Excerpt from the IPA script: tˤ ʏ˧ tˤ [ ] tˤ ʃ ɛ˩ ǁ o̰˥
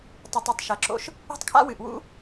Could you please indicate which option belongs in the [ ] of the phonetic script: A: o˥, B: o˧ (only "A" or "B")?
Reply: B